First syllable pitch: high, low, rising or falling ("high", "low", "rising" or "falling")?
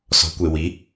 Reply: rising